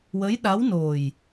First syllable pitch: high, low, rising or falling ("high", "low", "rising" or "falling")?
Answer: rising